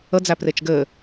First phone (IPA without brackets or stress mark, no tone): ə